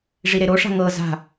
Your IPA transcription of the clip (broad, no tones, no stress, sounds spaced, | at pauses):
ʐ i ɾ e ɾ o ʂ a̤ ŋ ɤ z a̤